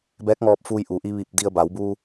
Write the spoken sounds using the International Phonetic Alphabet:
bɛː˧˥k̚ŋɔː˧p̚fuː˧j ʔu˩ʔi˧ ʋi˧˩p̚di˧ə̯ba˩˧wbu˧

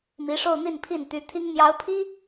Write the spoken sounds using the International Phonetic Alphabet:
mi˧˥ ʂo˥˧ʊ̯n̪i˥˧n pʰi˥˩n t̪y˧˥t̪ʰi˥ŋ n̪jɑ˧˥ʊ̯pʰi˥

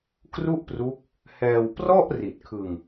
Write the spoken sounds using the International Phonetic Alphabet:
kru˥˩ʔpru˦˥k̚ | hɛː˧w prɔ˥˩ʔ ri˨˩t̚kʰɯ˧ŋ

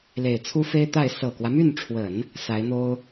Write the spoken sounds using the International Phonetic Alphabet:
le˨˩ɪ̯t͡sʰu˥fe˥ɪ̯t̪a˥˩ɪ̯ sɤ˨˩kwä˦my˥˩nʈ͡ʂʰwə˨˩˦n | sa˧˥ɪ̯n̪o˥ʊ̯

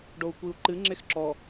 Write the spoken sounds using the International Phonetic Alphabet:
ɖou̯kʷiu̯ǃɨ ŋ͡ǁexǁɔ

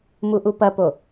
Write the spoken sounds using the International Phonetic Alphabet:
muʔupɐpo

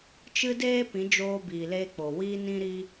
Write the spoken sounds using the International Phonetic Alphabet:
t͡ʃɨ˦ deː˦pĩ˨˦ d͡ʒoː˧biː˨leː˧k͡po˨ wiː˧nĩ˧ɾiː˧

